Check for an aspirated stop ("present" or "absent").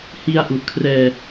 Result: present